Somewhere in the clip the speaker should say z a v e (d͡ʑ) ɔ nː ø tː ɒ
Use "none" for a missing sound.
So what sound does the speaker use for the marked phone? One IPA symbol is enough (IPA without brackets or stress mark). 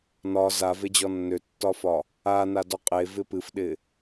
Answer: d͡ʑ